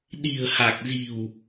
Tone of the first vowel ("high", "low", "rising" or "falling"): low